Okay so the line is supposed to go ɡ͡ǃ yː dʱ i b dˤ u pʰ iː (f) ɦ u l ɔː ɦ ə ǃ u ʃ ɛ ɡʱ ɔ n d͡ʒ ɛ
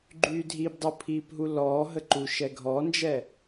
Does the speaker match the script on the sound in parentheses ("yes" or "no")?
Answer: no